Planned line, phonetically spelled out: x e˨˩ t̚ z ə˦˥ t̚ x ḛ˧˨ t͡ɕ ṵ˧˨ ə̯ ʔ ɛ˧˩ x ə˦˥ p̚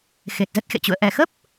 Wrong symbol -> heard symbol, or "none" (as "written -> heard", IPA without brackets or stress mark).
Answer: none